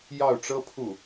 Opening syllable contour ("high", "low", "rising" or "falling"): falling